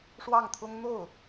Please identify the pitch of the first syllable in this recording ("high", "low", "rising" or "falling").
falling